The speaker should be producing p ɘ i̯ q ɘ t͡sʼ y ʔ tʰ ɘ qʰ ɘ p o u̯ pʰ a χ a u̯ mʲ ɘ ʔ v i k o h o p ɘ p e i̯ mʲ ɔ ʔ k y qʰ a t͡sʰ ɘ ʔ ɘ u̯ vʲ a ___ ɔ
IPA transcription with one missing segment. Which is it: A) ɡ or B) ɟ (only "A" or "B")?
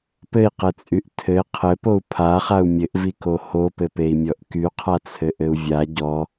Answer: B